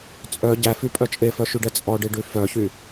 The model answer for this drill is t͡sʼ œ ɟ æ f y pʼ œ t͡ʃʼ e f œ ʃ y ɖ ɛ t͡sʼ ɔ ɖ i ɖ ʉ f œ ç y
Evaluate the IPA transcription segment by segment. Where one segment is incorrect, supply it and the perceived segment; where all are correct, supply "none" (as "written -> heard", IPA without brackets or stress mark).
none